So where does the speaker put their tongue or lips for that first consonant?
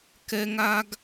velum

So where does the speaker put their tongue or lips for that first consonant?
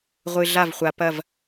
uvula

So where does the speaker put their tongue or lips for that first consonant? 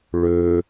retroflex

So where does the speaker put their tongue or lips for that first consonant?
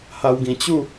throat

